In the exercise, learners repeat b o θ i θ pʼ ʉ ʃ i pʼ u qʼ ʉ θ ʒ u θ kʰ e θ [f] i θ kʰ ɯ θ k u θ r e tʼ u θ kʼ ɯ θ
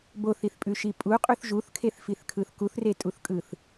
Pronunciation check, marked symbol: correct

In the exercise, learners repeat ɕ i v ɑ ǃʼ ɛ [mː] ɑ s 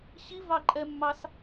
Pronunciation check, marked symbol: correct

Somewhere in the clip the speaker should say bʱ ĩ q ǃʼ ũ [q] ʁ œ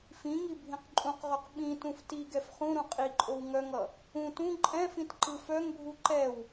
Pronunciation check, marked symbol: correct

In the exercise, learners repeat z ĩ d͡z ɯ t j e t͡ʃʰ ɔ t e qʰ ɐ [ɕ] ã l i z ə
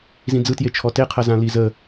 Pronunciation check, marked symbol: incorrect: z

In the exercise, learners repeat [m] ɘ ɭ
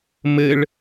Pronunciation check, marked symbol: correct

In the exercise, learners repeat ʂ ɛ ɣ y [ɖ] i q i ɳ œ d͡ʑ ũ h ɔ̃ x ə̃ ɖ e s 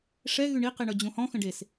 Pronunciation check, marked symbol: incorrect: ɳ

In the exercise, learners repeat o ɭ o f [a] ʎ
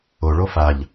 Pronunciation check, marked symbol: correct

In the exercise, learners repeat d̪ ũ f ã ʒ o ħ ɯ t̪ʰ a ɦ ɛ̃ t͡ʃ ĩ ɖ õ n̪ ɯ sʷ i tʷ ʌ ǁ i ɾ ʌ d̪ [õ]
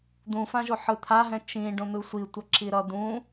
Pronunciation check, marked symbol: incorrect: ũ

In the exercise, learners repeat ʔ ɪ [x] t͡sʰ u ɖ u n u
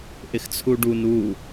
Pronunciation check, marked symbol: correct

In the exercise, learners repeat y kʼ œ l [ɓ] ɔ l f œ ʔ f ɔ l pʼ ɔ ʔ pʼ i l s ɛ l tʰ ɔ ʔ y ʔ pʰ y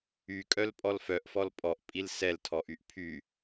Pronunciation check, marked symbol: incorrect: pʼ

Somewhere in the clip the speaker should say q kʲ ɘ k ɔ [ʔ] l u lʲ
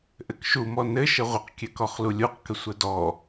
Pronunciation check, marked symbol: incorrect: χ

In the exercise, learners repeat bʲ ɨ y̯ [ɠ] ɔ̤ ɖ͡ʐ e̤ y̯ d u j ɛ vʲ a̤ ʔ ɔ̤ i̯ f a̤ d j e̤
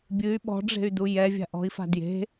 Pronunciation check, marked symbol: incorrect: ɓ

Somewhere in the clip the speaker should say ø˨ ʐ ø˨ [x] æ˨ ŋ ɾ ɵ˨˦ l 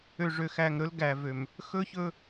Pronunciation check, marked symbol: correct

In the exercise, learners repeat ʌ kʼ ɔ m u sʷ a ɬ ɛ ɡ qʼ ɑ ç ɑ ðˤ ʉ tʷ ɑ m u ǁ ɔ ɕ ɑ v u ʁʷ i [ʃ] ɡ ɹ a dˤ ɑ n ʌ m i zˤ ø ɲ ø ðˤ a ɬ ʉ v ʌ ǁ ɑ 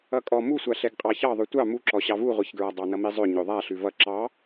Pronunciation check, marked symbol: incorrect: ç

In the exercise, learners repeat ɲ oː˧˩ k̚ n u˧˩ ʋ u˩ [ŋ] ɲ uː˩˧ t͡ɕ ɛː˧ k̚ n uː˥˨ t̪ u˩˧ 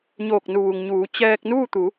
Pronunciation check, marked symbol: correct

